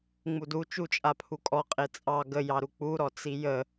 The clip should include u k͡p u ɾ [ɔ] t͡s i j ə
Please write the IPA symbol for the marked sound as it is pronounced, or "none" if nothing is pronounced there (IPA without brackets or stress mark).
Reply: ɔ